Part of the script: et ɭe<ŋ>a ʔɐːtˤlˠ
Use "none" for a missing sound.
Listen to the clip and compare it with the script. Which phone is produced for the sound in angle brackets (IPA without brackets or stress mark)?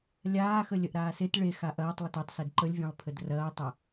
x